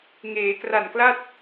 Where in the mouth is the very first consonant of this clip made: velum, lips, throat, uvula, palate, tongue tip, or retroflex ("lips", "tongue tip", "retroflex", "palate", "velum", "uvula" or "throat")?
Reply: velum